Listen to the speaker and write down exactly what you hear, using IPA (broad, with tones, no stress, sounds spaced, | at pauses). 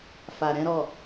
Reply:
f a˨ ɾ ɛ̃˨˦ ɾ ɔ˦˨